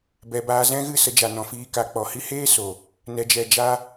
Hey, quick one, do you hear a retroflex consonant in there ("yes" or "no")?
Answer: no